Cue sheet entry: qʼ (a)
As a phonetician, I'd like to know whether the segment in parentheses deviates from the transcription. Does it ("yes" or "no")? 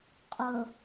yes